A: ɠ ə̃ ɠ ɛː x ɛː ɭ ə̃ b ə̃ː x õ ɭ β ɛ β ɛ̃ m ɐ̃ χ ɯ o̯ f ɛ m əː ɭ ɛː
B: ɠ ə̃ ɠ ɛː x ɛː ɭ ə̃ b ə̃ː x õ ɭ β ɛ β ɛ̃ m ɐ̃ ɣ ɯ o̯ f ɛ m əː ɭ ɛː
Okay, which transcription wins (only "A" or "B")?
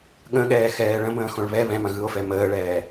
B